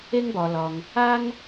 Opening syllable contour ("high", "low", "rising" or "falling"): high